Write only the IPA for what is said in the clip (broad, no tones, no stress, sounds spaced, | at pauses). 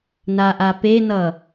n a ʔ a p e n ʌ